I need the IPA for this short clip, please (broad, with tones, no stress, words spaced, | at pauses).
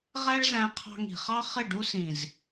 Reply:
ʁæ˦ɭzæ̃˧ qʰɑ̤˧ŋi̤˨χɑ˦ χɪ˦˨ ɖu˧sĩ˨z